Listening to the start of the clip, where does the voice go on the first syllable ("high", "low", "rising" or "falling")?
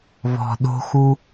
low